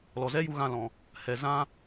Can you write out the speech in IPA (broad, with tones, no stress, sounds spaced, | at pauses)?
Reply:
l ɔ˨ z ɛ˦ j u˧ ɣ ã˦˨ l ɔ̃˨ | h ɛ˨ z ã˦